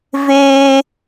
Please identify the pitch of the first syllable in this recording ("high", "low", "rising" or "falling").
high